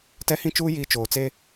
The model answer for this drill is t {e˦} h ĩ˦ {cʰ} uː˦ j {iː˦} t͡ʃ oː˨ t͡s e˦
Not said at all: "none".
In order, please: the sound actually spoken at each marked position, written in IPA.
ɛ˦, t͡ʃ, iː˦

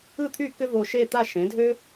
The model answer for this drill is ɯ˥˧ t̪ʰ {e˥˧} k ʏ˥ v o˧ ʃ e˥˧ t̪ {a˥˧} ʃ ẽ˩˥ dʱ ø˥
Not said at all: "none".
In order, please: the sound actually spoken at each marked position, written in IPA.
y˥˧, a˥˧

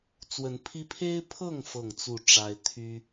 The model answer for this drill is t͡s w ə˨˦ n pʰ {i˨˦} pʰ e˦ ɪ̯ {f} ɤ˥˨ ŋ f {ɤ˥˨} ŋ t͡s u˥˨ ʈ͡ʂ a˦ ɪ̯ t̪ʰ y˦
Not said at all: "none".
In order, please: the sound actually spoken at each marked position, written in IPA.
i˦, pʰ, ɤ˥˨

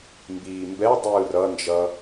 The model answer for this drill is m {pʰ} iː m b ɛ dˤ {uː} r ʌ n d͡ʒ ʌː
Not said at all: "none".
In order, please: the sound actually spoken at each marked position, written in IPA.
b, ɯː

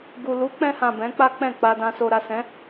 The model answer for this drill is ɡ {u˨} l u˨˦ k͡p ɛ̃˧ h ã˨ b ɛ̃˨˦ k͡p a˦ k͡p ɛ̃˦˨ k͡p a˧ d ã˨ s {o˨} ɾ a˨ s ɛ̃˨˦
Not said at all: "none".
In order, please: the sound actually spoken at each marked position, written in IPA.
u˨, o˨

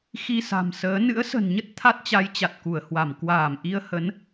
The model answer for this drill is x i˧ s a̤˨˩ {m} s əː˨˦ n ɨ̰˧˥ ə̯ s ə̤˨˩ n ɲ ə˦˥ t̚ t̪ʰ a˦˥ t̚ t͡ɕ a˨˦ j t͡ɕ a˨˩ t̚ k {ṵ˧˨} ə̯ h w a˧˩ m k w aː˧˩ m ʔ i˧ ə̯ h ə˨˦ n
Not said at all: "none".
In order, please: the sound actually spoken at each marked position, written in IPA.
m, u˧˩

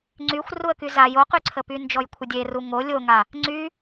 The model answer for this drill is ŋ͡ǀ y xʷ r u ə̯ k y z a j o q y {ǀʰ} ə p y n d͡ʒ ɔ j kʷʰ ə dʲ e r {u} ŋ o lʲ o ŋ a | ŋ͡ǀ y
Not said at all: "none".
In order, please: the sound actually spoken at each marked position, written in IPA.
ǀʰ, u

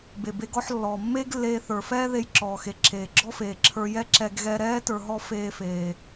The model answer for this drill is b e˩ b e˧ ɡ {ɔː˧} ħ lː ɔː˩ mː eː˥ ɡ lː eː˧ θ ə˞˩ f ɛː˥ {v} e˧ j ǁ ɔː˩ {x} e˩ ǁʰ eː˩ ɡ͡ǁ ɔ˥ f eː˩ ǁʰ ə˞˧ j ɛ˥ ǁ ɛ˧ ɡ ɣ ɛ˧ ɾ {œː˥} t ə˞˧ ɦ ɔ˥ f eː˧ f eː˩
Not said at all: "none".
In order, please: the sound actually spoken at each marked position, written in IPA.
ɔ˧, ð, x, ɛː˥

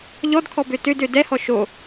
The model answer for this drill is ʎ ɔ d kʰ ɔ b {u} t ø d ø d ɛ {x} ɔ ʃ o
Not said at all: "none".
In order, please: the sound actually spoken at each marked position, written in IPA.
ø, h

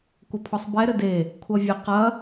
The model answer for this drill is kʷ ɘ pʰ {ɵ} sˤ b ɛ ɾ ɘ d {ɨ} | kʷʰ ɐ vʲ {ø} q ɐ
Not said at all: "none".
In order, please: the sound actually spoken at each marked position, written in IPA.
ɔ, e, ɘ

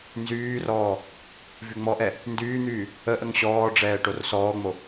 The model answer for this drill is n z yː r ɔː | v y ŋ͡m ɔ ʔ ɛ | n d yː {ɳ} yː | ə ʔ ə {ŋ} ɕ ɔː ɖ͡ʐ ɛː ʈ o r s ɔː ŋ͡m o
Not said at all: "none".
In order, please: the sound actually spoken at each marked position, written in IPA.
n̪, ŋ

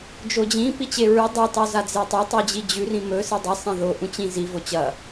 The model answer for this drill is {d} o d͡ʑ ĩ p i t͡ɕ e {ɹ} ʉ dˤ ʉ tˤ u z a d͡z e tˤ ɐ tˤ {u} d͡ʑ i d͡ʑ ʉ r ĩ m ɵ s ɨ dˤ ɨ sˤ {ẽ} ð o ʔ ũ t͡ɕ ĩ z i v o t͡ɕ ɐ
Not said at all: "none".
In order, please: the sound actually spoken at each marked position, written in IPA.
d͡ʒ, ɹ, ʉ, ĩ

